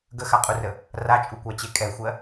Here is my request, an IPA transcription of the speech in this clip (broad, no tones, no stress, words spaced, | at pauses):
ɡəxaqʼurə | rat͡ʃʼukʷat͡ɕe kʼɛxʷɜ